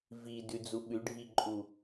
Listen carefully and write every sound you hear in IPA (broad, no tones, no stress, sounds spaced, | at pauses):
v i d ʉ d͡z u ɓ ʉ ɖʱ i ǃʼ u